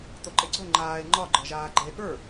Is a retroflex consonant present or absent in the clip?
absent